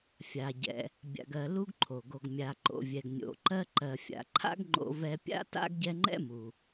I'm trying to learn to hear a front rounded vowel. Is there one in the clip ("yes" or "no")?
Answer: no